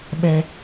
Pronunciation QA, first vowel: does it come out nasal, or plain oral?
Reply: oral